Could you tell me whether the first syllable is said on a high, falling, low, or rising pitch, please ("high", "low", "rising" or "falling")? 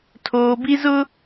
low